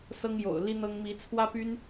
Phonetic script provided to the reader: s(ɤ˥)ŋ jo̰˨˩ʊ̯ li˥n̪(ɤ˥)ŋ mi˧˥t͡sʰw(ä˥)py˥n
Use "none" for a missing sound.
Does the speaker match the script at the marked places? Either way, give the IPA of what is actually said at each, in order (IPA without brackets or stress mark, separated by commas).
ɤ˥, ɤ˥, ä˥